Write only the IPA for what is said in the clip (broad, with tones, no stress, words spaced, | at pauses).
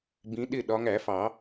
bĩ˨˦ɗɪ˥˧ɗɒ˨˦ŋ æ˨˩˦fɑ˨˩˦